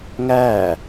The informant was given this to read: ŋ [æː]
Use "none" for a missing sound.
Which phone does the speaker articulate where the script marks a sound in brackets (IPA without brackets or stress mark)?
æː